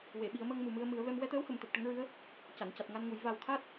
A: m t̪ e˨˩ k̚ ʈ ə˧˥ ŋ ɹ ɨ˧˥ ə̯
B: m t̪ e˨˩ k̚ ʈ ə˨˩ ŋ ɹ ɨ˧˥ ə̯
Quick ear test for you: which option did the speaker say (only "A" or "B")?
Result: A